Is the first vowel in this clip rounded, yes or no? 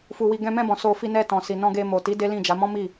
yes